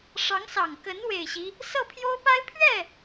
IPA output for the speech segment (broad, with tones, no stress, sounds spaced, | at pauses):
ʂ ɑ˧˥ ŋ s ɑ˨˩ ŋ k ə˧˥ n w e˨˩ ɪ̯ ɕ i˦ | s ɤ˥˩ pʰ j o˥ ʊ̯ p a˥ ɪ̯ pʰ ɥ ɛ˥˩